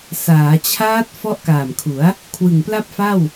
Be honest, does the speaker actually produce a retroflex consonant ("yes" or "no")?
no